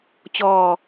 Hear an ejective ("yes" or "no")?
no